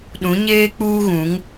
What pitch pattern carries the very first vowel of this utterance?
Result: rising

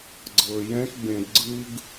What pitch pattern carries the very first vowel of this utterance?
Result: low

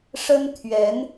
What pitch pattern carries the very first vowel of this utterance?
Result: high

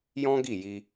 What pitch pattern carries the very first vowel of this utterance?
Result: high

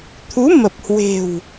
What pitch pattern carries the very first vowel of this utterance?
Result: rising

